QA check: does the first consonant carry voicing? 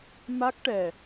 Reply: yes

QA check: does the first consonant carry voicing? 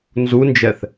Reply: yes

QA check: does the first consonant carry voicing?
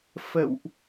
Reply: no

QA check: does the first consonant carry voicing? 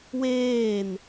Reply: yes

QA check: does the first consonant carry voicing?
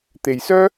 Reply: no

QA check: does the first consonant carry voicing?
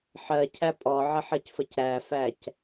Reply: no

